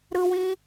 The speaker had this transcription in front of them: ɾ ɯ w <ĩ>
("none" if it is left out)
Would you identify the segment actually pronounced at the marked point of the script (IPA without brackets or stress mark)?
ĩ